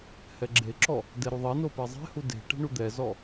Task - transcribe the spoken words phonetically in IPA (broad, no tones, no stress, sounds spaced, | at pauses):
h ɛ ɡ͡ǁ e ǁ ɔ | d ɛ ɾ u ðˤ e n o p ɛ zˤ e̤ h u d e̤ ʈ e̤ ɳ u d̪ ɛ z ɔ